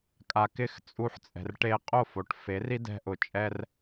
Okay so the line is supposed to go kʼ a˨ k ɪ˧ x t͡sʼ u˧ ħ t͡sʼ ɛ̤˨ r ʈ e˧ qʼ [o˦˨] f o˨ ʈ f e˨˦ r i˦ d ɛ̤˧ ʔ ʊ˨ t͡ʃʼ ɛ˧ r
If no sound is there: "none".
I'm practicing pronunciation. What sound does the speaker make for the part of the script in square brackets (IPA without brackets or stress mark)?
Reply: o˦˨